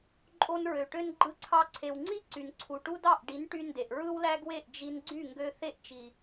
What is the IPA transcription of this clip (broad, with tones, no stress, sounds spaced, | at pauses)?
ǃʼ o˧ n ɹ ø˨ ʈ ø˧ n ɡ͡ǃ ɯ˧ ǀʰ ɑ˧ ǀʰ e˨ w ŋ͡ǀ i˦ ǀ y˨ n ǀʰ u˨ ʈ u˦ d ɑ˦˨ ʔ ɖ i˨˦ n ʈ y˧ n d e˨ ʔ ɹ ɯ˦ w l æ˦ ɡ w e˦˨ ʔ d͡ʒ i˧ n ɡ͡ǀ y˦˨ ŋ ɡ ø˧ θ e˦ ʔ t͡ʃ i˨